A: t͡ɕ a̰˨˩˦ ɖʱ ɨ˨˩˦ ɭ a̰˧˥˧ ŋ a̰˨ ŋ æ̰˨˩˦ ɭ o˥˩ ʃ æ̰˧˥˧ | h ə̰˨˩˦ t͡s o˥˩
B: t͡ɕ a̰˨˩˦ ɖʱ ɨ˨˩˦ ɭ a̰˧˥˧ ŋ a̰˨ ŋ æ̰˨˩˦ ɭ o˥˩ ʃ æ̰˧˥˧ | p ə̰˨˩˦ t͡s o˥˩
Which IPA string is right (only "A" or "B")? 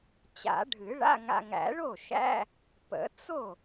B